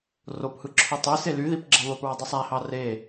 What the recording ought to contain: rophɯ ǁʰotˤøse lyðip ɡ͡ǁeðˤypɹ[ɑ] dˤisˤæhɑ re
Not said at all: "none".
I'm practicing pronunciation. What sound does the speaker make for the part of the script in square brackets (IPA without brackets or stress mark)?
ɑ